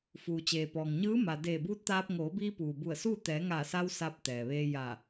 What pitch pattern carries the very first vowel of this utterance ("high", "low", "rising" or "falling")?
low